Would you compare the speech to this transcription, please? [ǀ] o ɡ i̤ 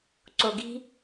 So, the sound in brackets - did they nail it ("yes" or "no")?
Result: yes